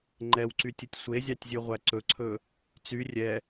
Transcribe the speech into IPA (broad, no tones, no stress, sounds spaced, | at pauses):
ŋ͡ǃ ɛ w ǀ y tʲ ɵ tʲ sʷ e zʲ ɑ tʲ zʲ ʉ ʁʷ æ ǀ ɵ ǀʰ ɵ | t͡s y rʲ ɛ